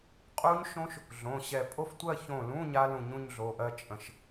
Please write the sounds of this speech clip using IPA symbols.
qʼ u˦˥ ɲ ʃ õ˦˥ ʃ | ɮ õ˩˧˩ ɕ ɛ˧˩ pʼ o˥˧ f tʷ ɜ˥˧ ç õ˧˩ l ũ˧˥˧ ɲ a˦˥ l ũ˧˩ ɲ ũ˥˧ ɲ ɮ o˩˧˩ ʔ ɜ˥˧ t͡ʃʼ ə̃˧˩ ʃ

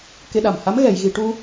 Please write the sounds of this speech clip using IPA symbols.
k e˧ ɗ a˨˩ m h a˧˥ m ɣ ɛ˨˩˨ j ɣ i˨˩˨ ʈ u˧

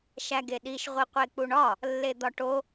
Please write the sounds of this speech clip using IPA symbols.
ʃ æ ɡ e ɗ i ʃ ʁʷ i qʷ e k͡p u ɳ ɒ | lː e d̪ ɒ ʈ o

